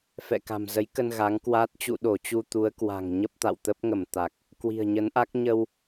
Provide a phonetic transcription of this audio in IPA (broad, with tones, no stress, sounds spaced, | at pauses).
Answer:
f ɛ̰˧˨ k a̤˨˩ m z ə˨˦ j k ə˧ n ɣ a˨˦ ŋ k w aː˦˥ t̚ t͡ɕ ṵ˧˨ ɗ o˧˩ t͡ɕ u˧ t̪ u˨˦ ə̯ k w a̤˨˩ ŋ ɲ ə˦˥ p̚ t̪ a̰˧˨ w t̪ ə˦˥ p̚ ŋ ə˧˩ m t̪ a˨˩ k̚ | k w i̤˨˩ ə̯ ɲ ə˨˦ n ʔ a˦˥ k̚ ɲ ə˧ w